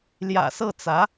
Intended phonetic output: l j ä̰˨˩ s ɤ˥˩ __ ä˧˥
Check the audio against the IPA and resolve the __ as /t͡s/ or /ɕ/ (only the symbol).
t͡s